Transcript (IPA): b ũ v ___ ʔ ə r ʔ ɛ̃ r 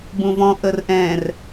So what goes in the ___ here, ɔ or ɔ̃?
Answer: ɔ̃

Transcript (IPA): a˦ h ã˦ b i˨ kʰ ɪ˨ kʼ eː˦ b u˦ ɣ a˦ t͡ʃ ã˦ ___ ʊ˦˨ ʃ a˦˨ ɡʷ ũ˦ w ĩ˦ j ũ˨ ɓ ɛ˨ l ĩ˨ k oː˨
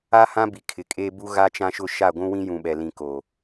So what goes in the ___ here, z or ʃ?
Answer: ʃ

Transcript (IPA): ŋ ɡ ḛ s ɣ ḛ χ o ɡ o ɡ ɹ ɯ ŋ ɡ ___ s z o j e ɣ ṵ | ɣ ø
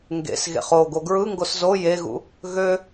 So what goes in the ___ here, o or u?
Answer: o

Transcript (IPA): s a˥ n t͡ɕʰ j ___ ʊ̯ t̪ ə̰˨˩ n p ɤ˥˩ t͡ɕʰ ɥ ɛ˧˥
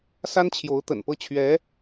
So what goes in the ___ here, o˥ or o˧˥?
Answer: o˧˥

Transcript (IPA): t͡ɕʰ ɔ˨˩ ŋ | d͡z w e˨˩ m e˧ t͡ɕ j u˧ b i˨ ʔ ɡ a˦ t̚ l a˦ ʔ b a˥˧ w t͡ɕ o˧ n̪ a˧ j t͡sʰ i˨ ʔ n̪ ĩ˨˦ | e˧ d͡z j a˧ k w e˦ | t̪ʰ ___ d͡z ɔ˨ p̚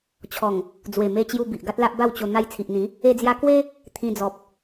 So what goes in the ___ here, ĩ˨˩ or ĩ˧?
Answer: ĩ˧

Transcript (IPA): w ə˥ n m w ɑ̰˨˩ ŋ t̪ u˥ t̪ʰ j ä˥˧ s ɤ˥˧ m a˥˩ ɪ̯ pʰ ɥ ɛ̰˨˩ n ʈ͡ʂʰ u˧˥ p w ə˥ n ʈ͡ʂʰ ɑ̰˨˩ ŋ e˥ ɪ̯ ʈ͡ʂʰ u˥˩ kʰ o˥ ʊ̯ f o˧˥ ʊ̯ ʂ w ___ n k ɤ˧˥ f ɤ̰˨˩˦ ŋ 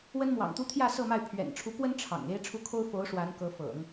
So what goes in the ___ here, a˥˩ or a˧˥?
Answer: a˧˥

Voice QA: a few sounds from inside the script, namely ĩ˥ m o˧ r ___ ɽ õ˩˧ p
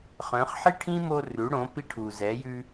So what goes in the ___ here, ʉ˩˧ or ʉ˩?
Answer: ʉ˩˧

